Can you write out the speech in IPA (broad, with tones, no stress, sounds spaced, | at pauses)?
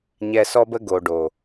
ɲ ɛ˧ s ɔ˦ b ə˦ ɡ o˨ ɖ o˨